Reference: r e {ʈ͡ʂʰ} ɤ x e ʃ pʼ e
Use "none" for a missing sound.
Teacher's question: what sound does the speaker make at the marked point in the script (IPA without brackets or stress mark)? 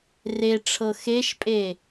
ʈ͡ʂʰ